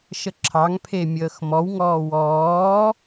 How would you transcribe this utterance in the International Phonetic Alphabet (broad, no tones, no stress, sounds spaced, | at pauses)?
ʃ ə ǁʰ ɑ ŋ pʰ e mʲ əː x m ɔ w ŋ ɔː w ɔː